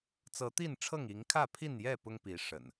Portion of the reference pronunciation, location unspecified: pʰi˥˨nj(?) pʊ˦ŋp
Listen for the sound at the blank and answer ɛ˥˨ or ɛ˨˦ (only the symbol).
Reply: ɛ˥˨